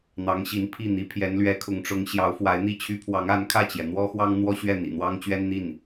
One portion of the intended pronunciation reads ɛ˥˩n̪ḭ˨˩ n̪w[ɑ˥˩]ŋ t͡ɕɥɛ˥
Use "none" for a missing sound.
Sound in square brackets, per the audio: ɑ˥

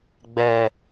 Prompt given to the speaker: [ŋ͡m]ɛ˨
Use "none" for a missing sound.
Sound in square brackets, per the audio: ɡ͡b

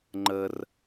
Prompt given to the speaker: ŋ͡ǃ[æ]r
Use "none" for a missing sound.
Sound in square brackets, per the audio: ə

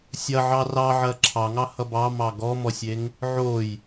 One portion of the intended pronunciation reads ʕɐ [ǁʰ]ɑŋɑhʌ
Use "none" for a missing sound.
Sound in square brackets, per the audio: ǁʰ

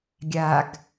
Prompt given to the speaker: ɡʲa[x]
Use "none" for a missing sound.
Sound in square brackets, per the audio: ɡ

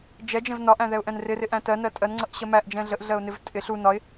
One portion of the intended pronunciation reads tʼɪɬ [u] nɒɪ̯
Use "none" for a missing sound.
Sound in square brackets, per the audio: u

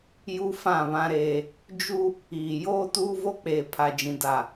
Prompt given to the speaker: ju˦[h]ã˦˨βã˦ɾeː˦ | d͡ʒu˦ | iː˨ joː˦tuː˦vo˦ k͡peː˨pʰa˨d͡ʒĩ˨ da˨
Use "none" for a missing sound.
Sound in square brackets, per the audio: f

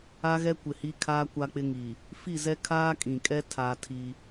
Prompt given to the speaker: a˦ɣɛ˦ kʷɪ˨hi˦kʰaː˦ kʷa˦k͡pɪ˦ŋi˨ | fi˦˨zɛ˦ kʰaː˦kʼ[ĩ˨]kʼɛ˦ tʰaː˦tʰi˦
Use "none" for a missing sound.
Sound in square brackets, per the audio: ĩ˨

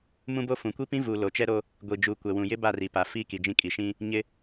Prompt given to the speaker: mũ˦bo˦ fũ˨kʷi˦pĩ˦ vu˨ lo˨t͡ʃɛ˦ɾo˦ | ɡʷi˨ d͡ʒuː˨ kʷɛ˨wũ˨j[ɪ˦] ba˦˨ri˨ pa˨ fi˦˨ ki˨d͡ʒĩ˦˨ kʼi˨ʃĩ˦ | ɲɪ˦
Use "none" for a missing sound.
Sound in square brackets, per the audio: ɪ˦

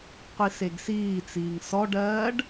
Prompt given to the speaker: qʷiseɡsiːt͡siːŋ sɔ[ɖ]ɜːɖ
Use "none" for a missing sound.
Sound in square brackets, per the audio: ɖ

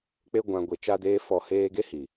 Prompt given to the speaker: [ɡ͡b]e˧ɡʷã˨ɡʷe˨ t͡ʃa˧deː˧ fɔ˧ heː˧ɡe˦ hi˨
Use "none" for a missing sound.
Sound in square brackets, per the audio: k͡p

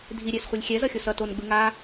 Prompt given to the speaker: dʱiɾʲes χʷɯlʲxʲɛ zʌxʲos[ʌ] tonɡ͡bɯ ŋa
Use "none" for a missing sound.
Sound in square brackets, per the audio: ʌ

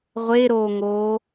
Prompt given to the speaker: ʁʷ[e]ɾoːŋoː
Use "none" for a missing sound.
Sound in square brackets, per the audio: e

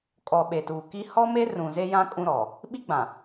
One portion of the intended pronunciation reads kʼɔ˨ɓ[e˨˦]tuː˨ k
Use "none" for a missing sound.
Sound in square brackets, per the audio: e˨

